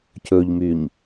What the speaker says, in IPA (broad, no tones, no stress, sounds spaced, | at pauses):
c ɵ ʎ m y ɲ